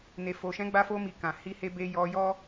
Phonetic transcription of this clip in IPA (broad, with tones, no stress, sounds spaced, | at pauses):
n e˨ f o˨ ʃ ɛ̃˨˦ ɡ͡b a˧ f o˧ m i˨ k ã˨ h i˧ h e˧ b e˧ j ɔ˧ j ɔ˦